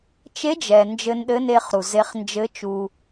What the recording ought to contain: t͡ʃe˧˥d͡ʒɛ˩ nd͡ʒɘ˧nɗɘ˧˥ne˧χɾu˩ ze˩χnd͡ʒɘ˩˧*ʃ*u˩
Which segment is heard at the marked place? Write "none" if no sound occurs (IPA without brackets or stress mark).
t͡ʃ